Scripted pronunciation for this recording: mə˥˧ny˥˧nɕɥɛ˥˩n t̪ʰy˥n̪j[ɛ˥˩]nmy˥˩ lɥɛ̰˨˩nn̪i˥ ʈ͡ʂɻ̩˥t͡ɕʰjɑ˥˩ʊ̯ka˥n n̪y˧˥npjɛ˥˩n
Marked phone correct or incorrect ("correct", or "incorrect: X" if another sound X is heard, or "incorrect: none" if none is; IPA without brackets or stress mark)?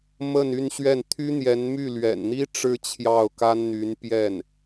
incorrect: ɛ˧˥